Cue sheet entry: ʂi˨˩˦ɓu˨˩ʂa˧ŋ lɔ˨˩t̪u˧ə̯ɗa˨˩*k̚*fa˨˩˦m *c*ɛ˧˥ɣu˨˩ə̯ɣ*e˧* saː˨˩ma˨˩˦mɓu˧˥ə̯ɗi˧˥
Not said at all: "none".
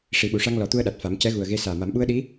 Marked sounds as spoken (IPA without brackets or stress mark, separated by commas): t̚, c, e˧